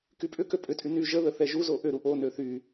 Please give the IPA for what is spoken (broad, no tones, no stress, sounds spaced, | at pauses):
k y pʼ ʏ k ø pʼ ʏ tʼ y n y ʒ ə ð ə θ ɛ ʒ u z o ʔ ʏ ɾ u ʔ o n ø θ y